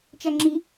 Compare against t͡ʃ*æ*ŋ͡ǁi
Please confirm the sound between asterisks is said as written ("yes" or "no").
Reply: yes